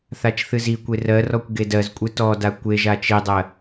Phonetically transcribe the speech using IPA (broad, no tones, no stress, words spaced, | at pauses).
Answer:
θat͡ʃθɨzikʷe rɜrɔkʷ ɡedɜzkʷʼɨ tɔda kʷeʒa t͡ʃidˤɜ